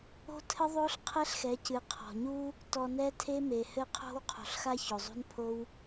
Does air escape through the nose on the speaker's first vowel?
no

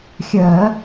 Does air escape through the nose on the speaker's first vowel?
no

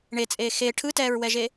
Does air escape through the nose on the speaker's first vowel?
no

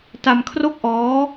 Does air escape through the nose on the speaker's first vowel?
no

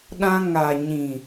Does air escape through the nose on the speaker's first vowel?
yes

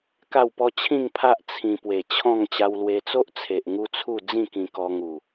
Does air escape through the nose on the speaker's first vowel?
no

